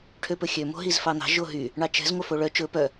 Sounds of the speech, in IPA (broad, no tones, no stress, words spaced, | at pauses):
ʈʰøpɵxʲø mo̤ɦizfɑn̪ɑ̤ ʒoɦy | ɳɑt͡ʃɛ̤z ŋʷœfoɭœ t͡ʃɵ pœ